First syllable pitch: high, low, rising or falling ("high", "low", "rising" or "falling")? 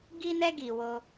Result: high